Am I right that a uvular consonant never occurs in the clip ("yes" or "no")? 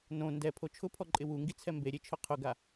no